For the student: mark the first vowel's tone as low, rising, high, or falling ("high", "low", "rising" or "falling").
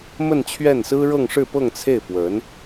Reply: falling